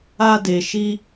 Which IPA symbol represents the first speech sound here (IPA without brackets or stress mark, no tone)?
a